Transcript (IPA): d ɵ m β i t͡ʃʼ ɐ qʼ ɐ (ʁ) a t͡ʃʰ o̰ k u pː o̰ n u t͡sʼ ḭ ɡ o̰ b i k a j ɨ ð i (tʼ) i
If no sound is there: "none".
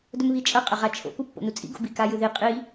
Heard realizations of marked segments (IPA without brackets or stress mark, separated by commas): ʁ, qʼ